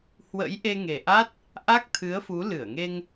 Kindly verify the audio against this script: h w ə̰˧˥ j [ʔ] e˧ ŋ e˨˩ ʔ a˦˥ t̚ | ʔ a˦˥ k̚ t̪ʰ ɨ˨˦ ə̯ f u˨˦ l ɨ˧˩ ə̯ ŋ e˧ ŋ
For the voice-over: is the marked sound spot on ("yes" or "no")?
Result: yes